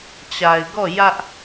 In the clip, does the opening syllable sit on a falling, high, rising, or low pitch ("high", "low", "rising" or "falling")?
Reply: low